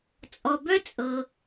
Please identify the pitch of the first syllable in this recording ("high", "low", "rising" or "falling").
low